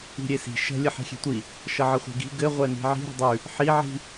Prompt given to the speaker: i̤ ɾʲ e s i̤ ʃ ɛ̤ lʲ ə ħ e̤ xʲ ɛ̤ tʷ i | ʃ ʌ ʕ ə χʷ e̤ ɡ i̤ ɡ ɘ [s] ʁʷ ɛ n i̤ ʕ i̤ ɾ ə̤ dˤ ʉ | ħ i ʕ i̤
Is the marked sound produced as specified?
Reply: no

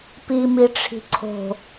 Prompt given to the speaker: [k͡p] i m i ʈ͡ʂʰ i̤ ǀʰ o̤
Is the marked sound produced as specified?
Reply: no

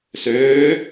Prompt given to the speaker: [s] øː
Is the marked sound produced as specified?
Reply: yes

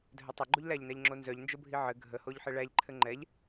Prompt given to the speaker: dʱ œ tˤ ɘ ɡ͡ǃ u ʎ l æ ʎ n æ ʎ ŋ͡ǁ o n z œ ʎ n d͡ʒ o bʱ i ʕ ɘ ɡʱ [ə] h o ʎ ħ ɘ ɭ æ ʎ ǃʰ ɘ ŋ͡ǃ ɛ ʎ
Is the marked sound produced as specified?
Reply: yes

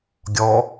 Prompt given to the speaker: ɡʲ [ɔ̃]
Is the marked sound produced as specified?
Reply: no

